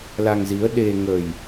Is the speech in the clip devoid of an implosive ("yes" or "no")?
no